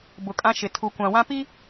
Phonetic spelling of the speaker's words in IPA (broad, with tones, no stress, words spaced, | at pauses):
bʊ˨kʼã˦ ʃɪ˨ tʰu˨kʷã˨wã˦ pi˦